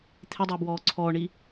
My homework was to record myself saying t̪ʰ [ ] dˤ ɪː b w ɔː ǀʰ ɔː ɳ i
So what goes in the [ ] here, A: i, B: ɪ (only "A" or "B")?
B